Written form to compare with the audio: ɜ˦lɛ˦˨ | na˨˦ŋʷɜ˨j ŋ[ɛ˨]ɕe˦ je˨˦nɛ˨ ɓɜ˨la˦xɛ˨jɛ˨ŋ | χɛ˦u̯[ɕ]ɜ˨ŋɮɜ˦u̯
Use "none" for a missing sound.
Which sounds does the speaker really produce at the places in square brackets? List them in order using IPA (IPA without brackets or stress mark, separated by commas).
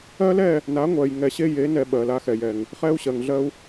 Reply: ɛ˨, ɕ